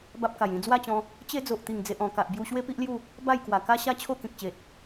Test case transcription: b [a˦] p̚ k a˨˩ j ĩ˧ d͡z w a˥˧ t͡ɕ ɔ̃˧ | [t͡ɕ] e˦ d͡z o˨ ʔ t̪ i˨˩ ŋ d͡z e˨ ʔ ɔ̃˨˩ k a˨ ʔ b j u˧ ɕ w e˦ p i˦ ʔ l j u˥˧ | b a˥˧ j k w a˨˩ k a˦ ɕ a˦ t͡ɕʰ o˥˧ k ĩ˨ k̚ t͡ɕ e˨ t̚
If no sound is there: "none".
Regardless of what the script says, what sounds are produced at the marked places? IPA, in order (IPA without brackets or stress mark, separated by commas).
a˦, t͡ɕ